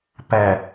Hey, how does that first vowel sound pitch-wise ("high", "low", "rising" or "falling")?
low